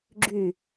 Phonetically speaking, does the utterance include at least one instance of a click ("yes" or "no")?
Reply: yes